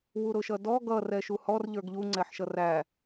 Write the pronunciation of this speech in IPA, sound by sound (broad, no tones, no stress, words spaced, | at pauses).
wuɾʊʃʌdɔ ɡʌ rɛʃuhɔr ʎə˞ɡʎu ŋ͡ǀɛħʃʌræ